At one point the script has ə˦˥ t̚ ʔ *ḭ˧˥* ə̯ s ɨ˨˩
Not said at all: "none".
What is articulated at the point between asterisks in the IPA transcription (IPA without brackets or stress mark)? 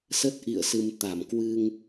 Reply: ḭ˧˨